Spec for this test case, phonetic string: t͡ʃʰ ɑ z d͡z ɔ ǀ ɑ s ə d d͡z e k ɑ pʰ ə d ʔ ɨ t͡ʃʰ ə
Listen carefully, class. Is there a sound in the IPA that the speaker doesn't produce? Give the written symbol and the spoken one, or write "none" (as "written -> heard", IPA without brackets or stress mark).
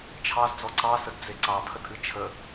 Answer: k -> ǀ